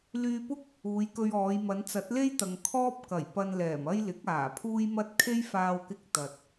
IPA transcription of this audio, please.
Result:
l yː˧ p ʊ˥ k̚ | uː˨˧ j k ɵ˧ ɥ ɔː˨˧ j m ɐ˨˧ n t͡s ɐ˨˥ t̚ l e˥ j t̪ ɐ˨ ŋ kʰ ɔː˥ p̚ k ɐ˨˩ j p ɐ˧ n l ɛː˨˩ m ɐ˥ j l ɪ˨˥ k̚ aː˨˩ pʰ uː˥ j m ɐ˥ t̚ kʰ e˥ j f aː˧ w k ɪ˧ k̚ t̪ ɐ˨ t̚

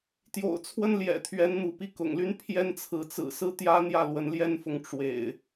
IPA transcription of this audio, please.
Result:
t̪ j o̰˨˩ ʊ̯ t͡sʰ w ə˦ n l j ɛ̰˨˩ t̪ʰ ɥ ɛ˨˦ n n̪ u˨˦ p i˧ k ʊ̰˨˩ ŋ l y˦ n pʰ j ɛ˦ n t͡sʰ ɹ̩˨ t͡s ɹ̩˨˩ s ɹ̩˥˨ t̪ j ä˦ n̪ j ä˥˨ l w ə˨˦ n l j ɛ˦ n f ʊ˨ ŋ ʈ͡ʂ w ḛ˨˩ ɪ̯

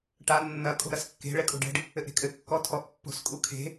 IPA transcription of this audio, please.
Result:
ʈ a nː ɐ kʼ o̤ ɾ ɐ s kː e̤ ɭ ɛ kʼ o̤ ɖ ɛ̤ ɖ | ɘ ʔ ɾ e̤ kʼ ɘ kː ɔ tʰ ɔ ʔ pː o̤ s kʼ u kʰ e̤

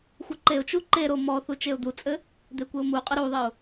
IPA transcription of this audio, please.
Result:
xʷ ɘ ǃ e ʊ̯ t͡ʃ u ǃ e ɾ o m ɔ θ u t͡ʃ e ʊ̯ d̪ u t͡sʼ ɘ | d̪ e kʷ ɘ ʊ̯ m u qʼ ɘ ɾ u ðˤ ɘ ʊ̯

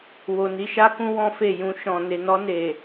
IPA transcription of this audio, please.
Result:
w o˨ n i˨˦ ʃ a˦ k ũ˦ w ɔ̃˦ f e˦˨ j ũ˧ ʃ ɔ̃˨ n e˨ n ɔ˧ n e˨

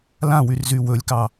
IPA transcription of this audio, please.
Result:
l ã w y r z y w ɵ lʲ k ɑ

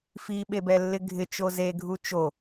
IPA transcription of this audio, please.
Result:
f i ɓ e b ɛ lː ɪ ɡʱ ɪ t͡ʃ o z e ɡʱ u t͡ʃ o

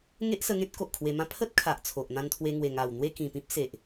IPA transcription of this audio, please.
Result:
ŋ e˦ ʔ s ə˧ ŋ ẽ˦ t̚ k o˨ ʔ kʰ w e˧ m ã˦ pʰ ə˦ t̚ kʰ a˨ ʔ t͡sʰ o˨ ʔ n̪ ã˧ n t̪ʰ w e˧ ŋ w e˨˩ ŋ a˨˩ w n̪ w e˥˧ k ĩ˨˩ p ĩ˦ p̚ s e˨ ʔ

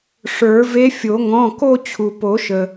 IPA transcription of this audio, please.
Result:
ʂ ə˞˨˩˦ v e˧˥ fʲ o˨˩˦ ŋ ɔ̃˩˧˩ k o˥˧ t͡ɕʰ u˩ p o˨˩˦ ʃ ə˩

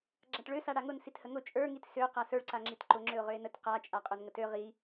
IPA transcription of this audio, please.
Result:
ɡ͡ǁ a ʈ ɭ ø s a ɽ a ŋ ʊ n s i t h ə ŋ ʊ t͡ʃʼ ə˞ ŋ i t s ø q a s ə˞ ɭ ǀ a ŋ͡ǁ i t ǃ ʊ ŋ͡ǁ ø ʊ̯ ʁ ø ɪ̯ n ə t q a t͡ʃʼ a qʼ ø n ŋ ə t ø ʁ i

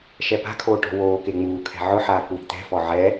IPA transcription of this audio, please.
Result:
ʃ ɛ p a̤ kʰ oː ʈ ɔ̤ w oː k e ŋ͡m uː kʰ ɛ̤ ʕ ʊ ħ aː k w i̤ t̪ ɛ̤ f ɔ ʕ ɛ

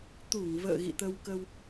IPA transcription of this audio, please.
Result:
t̪ u˧˩ ŋ v ə̰ː˧˨ ɣ ḭ˧˨ t̪ ə˧ w k ə˧ w

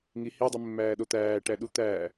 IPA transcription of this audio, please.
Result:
ŋ i h i dˤ i mː æː ɗ o t̪ æː ʈ æ ɗ u t̪ æː

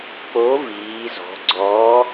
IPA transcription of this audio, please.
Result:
k͡p o˨˥ v iː˩˧ z ɔ̤˩˧ ɡ͡ǀ ɔ˨˥

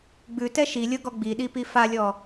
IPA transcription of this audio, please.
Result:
ɡ͡b ʉ t ɛ ʃ i lʲ ɤ ɡ ɔ ɡ͡b i ɗ i p i f a lʲ ɔ

